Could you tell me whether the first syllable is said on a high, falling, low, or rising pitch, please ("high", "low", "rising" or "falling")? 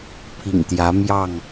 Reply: low